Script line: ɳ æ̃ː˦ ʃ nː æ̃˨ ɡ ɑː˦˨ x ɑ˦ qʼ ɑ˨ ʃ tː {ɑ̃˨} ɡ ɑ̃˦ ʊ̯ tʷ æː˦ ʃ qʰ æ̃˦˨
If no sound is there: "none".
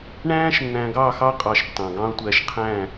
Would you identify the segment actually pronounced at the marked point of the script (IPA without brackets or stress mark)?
ɑ̃˨